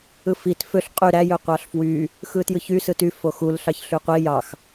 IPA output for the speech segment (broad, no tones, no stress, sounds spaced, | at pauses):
ɯ f i t f ø ɬ qʼ y ɾ æ j ø qʷ ɑ ɬ f w y | x ɯ t j ɯ ç y s ɯ t y f o x u l ɬ ɑ ç ɬ y qʷ i j ɑ x